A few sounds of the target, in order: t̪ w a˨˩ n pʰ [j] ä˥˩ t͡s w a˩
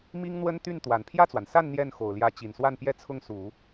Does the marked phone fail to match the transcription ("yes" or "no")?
no